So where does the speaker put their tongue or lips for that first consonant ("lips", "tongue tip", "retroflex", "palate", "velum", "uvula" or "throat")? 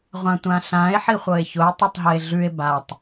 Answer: uvula